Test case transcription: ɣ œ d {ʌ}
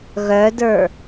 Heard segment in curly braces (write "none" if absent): ə˞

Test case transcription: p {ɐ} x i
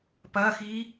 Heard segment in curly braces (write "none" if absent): ɐ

